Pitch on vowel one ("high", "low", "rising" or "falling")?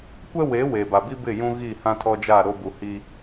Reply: high